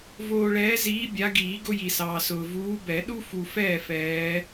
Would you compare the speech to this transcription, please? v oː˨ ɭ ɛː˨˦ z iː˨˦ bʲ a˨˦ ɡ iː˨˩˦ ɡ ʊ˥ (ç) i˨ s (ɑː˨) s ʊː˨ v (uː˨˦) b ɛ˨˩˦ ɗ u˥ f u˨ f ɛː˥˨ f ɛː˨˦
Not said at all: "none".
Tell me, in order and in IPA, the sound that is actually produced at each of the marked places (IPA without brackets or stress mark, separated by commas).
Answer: j, ɑː˨, uː˨˦